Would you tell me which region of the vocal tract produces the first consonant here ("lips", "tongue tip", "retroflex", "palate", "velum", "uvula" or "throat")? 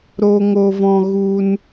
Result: tongue tip